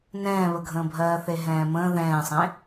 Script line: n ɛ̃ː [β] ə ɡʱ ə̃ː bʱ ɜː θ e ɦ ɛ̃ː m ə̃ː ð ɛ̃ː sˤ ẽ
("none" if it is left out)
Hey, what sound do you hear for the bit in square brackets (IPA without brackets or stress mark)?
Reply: β